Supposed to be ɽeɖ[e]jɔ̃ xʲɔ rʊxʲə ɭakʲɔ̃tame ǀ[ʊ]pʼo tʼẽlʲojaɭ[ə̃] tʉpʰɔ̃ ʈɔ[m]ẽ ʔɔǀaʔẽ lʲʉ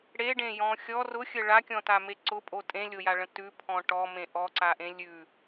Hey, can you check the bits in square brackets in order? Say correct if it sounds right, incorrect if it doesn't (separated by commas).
incorrect, correct, correct, correct